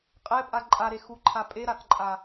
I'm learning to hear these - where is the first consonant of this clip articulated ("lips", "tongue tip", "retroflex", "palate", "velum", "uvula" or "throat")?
uvula